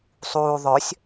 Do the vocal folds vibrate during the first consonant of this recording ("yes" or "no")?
no